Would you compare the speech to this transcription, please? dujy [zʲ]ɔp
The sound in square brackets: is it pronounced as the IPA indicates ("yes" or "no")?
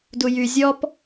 yes